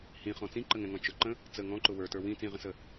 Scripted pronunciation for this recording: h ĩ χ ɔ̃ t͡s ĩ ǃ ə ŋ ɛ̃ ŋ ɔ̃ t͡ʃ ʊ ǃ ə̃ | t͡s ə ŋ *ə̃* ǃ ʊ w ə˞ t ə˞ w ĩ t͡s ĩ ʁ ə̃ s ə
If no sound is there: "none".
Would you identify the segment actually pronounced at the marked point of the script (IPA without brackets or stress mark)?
ɔ̃